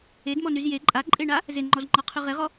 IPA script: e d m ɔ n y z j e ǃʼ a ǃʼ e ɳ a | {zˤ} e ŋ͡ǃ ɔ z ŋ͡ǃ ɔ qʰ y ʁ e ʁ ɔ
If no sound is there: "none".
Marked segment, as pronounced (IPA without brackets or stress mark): z